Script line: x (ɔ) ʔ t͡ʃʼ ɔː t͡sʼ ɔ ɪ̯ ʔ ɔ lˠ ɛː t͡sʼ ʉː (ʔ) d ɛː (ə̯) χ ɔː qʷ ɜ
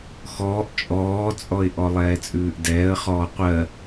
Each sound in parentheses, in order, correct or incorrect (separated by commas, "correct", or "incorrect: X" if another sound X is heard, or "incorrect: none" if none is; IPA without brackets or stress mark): incorrect: ɔː, correct, correct